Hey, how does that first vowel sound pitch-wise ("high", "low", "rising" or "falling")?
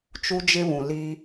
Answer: high